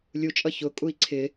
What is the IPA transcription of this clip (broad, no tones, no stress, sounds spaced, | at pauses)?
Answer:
lʲ u t͡ʃʼ ʌ ç ʊ kʼ u i̯ ǀʰ ɪ